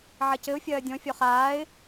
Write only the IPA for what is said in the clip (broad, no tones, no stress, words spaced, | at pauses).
ʕɐcɘʊ̯ fʲɐːdʲɔ̃ fʲɔχaːɪ̯